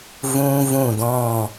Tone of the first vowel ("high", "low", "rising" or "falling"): high